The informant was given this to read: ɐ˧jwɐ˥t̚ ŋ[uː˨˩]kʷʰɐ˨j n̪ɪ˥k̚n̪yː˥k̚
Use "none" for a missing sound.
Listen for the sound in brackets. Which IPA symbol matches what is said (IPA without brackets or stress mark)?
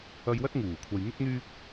uː˨˩